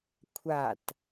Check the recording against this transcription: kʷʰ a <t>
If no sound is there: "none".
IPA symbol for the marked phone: t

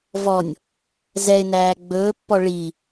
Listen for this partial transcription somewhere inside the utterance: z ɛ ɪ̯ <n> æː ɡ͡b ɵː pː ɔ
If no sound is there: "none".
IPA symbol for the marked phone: n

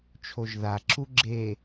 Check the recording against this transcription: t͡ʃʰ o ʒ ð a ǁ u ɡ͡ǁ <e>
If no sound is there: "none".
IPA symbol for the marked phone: e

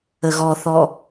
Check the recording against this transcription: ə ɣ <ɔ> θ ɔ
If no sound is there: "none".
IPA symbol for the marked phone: ɔ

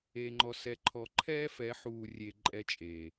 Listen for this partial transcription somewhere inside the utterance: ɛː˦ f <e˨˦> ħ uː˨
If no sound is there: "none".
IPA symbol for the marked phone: ɛ˨˦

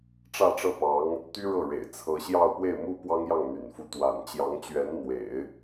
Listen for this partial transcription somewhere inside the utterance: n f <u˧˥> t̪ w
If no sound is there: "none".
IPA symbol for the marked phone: u˧˥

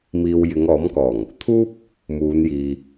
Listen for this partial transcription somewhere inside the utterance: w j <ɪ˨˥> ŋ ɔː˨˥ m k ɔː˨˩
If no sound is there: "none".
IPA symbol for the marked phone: ɪ˨˧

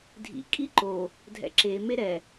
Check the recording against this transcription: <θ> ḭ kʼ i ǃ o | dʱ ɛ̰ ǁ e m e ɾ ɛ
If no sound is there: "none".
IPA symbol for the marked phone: dʱ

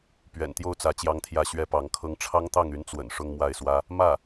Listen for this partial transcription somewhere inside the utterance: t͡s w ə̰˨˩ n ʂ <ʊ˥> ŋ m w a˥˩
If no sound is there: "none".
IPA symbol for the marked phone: ʊ˥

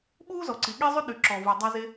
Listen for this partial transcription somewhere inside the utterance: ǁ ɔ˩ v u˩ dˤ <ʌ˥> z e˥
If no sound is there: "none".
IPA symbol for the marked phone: a˥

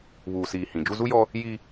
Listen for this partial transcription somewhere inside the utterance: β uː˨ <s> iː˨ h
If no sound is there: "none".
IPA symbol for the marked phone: s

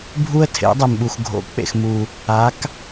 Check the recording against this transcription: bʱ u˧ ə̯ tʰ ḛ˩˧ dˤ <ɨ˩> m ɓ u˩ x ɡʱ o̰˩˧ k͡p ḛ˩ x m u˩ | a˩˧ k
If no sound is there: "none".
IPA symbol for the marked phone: e˩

